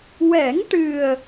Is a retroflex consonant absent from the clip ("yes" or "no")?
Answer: no